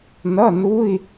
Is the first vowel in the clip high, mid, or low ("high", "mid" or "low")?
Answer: mid